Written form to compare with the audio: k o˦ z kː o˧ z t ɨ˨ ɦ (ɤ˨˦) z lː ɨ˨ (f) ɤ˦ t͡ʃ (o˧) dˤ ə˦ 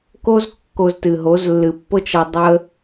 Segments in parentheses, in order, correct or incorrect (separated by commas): incorrect, incorrect, incorrect